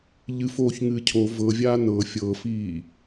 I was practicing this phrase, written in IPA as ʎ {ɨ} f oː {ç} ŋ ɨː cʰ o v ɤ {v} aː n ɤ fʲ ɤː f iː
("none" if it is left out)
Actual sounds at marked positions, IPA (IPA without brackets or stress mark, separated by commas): ɨ, ç, vʲ